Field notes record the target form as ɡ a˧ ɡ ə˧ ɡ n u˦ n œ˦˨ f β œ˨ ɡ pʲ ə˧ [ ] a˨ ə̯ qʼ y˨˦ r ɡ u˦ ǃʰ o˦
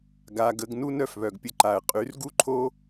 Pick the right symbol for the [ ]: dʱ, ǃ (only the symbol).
ǃ